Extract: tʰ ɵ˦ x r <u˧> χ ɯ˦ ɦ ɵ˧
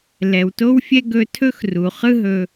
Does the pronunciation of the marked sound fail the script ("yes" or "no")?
yes